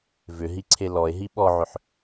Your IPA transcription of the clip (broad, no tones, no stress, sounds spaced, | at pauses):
v ʏ ɦ i ǀʰ e l ɔ e̯ ɦ i ɓ ɔ ʕ ʏ ħ